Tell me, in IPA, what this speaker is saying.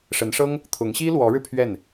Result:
ʂ ə˧˥ n ʂ ɤ˥ ŋ | t̪ʰ ʊ˧˥ ŋ ɕ i˥ l w ɔ˧˥ ɻ ɻ̩˧ pʰ ɥ ɛ˥˩ n

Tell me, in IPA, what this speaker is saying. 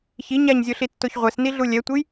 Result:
ç i ɲ a ɲ zʲ o ɬ i tː o ç ʁʷ ɛ s n i ɮ u lʲ ɛ tʷ e j

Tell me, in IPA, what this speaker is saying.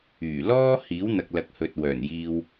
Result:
yː˨˩ l ɔː˥ h iː˨˥ w n̪ ɐ˨ k̚ l ɐ˨˥ k̚ h ɵ˨ t̚ w œː˨˩ n j iː˧ w

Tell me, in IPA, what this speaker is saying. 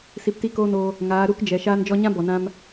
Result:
s i˧ p t i˦ k oː˦ n oː˧ | ŋ aː˨˦ ɾ u˦ k d͡ʒ ɛ˨ ʃ aː˧ n d͡ʒ ɔ˧ ɲ ã˦ b ɔ˨ n ã˧ m

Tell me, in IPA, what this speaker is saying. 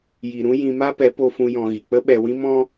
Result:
j i˨ ɾ ũ˦ j ĩ˧ m a˦ p ɛ˨˦ p o˧ f ũ˧ j ɔ̃˧ ɣ i˨ k͡p ə˦ ɓ ɛ˧ w ĩ˦ m ɔ̃˦

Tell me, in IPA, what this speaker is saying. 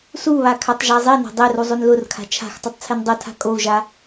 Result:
s u β a kʰ a tˤ ʒ a zˤ i n a̤ dˤ e r u zˤ o n l ʊ r kʰ a̤ t͡ʃʰ a̤ x tˤ œ tˤ t͡sʰ e n dˤ o tʰ a̤ kʼ o u̯ ʒ a

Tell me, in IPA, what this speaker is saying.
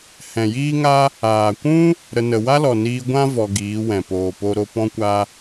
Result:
h ɛ̃˨ j iː˦ ŋ a˦ | aː˨ kʷ ũ˦ | ɾ ə˧ n ə˨ w a˦ l ɔ˨ n iː˧ ɡʷ ã˦ v ɔ˧ ɡ iː˨˦ w ɛ̃˨ p oː˨ p o˧ ɾ o˧ p ɔ̃˦ kʷ a˦

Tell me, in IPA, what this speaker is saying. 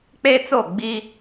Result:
k͡p e˦ t͡s o˦˨ ɡ͡b i˦

